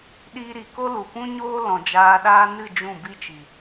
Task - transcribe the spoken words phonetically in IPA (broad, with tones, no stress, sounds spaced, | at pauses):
ɗ iː˧ ɾ i˨ k o˦ l u˨ p ũ˦ ɲ oː˦ l ɔ̃˨ d͡ʒ aː˧ ɗ aː˦ n ɨ˦˨ d͡ʒ ũ˦˨ b i˦ t͡ʃ i˨